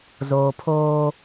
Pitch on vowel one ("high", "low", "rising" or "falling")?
low